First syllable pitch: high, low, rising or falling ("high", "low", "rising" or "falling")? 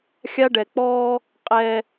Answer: high